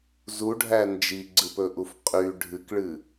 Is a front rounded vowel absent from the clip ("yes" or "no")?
no